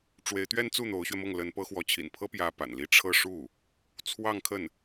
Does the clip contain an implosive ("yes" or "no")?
no